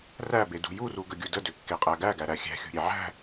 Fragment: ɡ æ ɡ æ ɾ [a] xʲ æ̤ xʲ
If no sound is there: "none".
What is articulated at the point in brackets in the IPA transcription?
æ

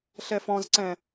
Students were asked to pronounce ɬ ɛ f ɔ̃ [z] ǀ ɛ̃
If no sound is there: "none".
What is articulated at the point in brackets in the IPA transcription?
z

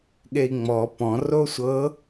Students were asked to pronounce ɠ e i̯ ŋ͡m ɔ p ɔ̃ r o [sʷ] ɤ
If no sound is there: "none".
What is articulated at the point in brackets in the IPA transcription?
sʷ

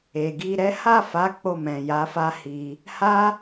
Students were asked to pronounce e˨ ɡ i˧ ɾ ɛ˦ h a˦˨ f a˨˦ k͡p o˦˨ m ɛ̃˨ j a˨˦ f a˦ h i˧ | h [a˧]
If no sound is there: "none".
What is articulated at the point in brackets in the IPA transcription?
a˦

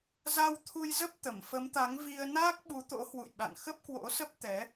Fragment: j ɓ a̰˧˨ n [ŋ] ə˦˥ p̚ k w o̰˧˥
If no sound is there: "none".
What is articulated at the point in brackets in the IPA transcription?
x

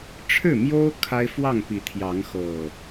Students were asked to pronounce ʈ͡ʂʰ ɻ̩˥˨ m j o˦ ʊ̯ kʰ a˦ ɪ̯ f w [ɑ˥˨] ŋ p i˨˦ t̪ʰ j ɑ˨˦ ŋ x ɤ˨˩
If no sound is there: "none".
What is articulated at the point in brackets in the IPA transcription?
ɑ˥˨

